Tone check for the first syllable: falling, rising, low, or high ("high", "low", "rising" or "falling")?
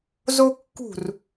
high